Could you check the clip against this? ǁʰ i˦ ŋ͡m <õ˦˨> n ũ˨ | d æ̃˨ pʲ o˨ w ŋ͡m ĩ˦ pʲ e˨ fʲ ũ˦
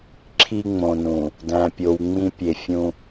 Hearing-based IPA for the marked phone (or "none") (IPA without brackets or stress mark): õ˨